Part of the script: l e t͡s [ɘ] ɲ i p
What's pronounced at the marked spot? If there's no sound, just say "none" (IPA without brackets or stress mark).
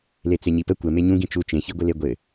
e